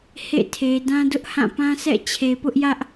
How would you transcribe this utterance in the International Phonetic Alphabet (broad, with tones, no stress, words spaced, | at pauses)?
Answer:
hḛ˦˨tʰe˨dã˦ dʊ˦ʔhã˦˨pã˦sɛ̰˦˨ t͡ɕʰe˨pʊ˦ʔjä˦ʔ